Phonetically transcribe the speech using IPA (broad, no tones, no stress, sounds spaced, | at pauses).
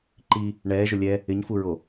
ǃ i | ɳ ɛː ʒ ʊ lʲ ɛ | ɪ ɲ f u ɹ o